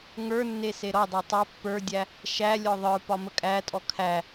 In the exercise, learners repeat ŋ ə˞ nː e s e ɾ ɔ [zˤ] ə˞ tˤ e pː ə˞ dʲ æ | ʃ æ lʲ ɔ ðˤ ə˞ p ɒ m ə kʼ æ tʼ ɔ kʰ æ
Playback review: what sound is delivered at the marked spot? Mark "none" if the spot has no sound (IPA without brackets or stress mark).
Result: dˤ